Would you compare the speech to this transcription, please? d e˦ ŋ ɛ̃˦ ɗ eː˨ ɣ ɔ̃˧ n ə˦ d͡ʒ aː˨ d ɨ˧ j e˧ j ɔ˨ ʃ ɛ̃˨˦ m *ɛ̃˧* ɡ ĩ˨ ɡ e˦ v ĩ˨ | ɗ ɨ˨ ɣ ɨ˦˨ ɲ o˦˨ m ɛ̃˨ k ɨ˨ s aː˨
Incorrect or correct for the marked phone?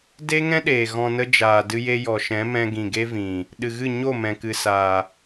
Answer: correct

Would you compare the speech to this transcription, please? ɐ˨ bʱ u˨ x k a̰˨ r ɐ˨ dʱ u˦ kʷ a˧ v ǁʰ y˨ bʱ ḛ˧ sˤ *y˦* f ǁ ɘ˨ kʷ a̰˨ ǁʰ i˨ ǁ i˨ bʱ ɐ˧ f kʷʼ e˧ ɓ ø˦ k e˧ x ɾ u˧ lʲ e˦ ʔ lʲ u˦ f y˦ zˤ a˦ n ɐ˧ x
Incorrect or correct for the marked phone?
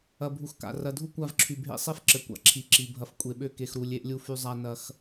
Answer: incorrect: e˦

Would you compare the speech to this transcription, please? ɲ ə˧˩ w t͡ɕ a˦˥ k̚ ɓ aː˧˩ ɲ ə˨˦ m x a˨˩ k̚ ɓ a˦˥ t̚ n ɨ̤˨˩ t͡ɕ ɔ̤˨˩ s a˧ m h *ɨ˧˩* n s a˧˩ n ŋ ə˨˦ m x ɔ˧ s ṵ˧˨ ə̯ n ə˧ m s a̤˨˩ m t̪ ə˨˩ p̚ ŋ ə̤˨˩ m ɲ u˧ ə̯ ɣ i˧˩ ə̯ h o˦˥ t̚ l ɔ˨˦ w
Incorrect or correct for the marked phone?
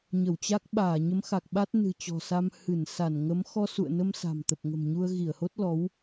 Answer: correct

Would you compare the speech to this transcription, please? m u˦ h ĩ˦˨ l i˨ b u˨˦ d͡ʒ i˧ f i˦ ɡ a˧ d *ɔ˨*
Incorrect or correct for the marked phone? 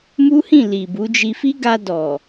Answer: correct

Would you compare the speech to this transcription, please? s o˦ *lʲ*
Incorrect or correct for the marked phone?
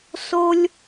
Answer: correct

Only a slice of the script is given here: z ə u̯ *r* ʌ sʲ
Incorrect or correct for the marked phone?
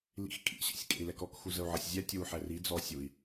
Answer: incorrect: ʕ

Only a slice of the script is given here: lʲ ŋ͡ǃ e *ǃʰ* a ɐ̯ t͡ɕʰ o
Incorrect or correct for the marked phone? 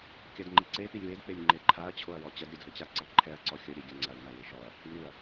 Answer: correct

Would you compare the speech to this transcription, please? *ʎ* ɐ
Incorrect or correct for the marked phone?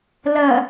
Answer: incorrect: l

